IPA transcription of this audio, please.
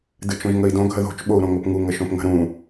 d ɨ t͡ʃ õ ʒ ŋ ə i̯ d õ ɡʱ ə ð o̤ t͡ʃ ɓ o u̯ ɾ õ ŋ o p ŋ u ŋ ə ʃ õ p ŋ ə̤ ɾ ũ

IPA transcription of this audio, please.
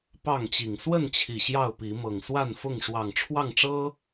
p ɑ˥˨ ŋ t͡ɕ i˨˩ ŋ s w ə˥˨ n t͡ɕʰ i˨˩ ɕ j ɑ˥˨ ʊ̯ p i˨˦ m ɤ˨˩ ŋ s w a˥˨ n f ʊ˥˨ ŋ ʂ w ɑ˨˩ ŋ ʈ͡ʂʰ w ɑ˥˨ ŋ ʈ͡ʂ ɤ˦

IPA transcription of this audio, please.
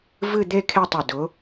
v ɨ˥˧ d̪ e˥˧ kʰ e˥˧ tˤ ʊ˧˩ d ʊ˨˦

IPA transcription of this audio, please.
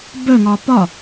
b œ ŋ ɒ p ɒ

